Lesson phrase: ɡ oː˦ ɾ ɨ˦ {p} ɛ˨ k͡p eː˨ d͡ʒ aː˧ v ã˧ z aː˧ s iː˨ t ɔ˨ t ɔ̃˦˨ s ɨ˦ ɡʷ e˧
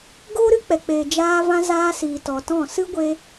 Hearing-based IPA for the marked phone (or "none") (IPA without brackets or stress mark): k͡p